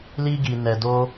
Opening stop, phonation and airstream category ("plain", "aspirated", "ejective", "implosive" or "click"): plain